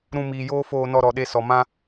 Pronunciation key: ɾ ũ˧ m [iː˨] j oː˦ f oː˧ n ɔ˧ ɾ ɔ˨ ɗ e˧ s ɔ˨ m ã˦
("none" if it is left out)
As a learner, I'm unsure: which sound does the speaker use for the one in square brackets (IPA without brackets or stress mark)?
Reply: iː˨